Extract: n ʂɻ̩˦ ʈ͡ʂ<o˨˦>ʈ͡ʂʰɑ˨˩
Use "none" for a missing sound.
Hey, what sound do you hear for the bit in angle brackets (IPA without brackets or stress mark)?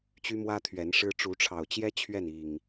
u˨˦